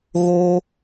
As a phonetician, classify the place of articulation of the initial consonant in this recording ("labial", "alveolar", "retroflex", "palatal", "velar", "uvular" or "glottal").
velar